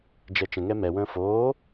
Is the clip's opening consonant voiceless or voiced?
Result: voiced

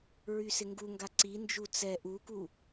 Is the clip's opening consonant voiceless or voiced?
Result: voiced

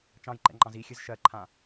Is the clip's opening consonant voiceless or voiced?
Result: voiceless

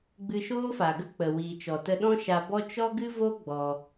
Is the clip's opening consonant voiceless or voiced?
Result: voiced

